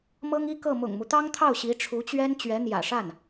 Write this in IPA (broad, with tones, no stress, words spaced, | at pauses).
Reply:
mɤ˥ŋi˥kɤ˥˩ mʊ̰˨˩ŋmu˦t̪ɑ˥ŋt̪ʰɑ˥˩ʊ̯ ɕi˧˥ʈ͡ʂʰu˧˥t͡ɕɥɛ˥n t͡ɕɥɛ˧˥n̪jä̰˨˩ʂa˥˩n